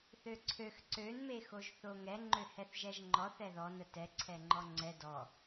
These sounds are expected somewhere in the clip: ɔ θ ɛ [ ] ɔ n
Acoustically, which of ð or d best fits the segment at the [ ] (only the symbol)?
ð